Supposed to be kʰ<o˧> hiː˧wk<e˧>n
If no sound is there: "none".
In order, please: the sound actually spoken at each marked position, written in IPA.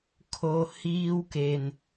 o˧, e˩

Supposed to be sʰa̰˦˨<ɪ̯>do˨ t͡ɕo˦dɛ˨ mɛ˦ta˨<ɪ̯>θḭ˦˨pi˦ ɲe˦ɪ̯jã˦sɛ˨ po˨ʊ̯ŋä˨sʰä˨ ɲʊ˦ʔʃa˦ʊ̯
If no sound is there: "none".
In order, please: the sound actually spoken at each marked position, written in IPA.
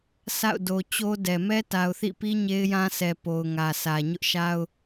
ʊ̯, ʊ̯

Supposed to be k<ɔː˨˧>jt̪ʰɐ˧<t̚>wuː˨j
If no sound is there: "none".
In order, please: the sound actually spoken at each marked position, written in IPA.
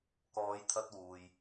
ɔː˨˧, t̚

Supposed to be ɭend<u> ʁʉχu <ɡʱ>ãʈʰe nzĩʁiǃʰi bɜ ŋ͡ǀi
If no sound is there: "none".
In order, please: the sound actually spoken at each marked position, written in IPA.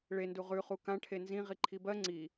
u, k

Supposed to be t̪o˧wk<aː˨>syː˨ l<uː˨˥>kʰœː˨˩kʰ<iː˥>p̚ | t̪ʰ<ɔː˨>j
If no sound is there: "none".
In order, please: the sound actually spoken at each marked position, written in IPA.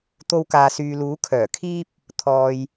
aː˨, uː˨˥, iː˥, ɔː˨

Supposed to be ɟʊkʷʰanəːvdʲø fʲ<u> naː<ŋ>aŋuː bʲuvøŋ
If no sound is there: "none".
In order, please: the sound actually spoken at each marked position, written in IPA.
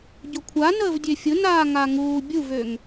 ʊ, ŋ

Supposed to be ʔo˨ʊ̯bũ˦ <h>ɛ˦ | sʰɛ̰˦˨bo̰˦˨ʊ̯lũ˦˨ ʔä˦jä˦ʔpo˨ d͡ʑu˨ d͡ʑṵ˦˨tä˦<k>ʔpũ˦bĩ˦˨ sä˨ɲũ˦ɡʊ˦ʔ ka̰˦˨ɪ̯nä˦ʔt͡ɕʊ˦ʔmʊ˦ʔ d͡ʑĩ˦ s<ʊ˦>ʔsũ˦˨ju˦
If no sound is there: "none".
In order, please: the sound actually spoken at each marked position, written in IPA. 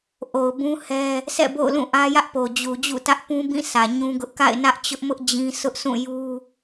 h, none, ʊ˦

